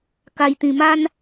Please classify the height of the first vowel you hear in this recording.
low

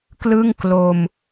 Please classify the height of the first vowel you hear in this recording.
high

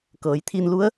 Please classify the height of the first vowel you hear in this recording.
mid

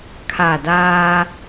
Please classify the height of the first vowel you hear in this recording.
low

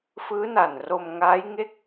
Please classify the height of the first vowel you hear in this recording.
high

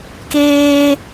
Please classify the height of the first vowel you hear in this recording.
mid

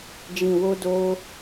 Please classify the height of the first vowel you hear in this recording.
high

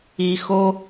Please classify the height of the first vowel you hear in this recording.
high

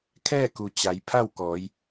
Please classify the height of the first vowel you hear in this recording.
mid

